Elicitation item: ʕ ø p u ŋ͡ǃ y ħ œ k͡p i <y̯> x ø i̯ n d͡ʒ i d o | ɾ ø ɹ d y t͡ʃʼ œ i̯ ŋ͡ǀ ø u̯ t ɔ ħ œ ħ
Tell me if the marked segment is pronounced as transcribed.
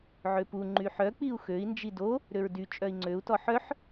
no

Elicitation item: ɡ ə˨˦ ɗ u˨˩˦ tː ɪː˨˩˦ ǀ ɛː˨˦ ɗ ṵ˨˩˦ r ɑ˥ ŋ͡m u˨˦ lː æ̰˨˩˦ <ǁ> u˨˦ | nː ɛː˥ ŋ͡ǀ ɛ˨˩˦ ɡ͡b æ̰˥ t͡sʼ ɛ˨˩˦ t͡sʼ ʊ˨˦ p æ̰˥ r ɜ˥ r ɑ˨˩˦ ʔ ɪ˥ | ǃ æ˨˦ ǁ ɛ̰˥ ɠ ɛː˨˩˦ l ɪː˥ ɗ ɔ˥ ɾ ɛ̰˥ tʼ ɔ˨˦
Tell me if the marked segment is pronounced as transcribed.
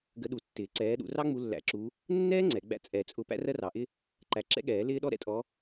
yes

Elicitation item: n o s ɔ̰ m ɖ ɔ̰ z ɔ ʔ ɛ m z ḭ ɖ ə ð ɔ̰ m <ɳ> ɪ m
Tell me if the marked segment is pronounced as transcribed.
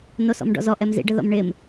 yes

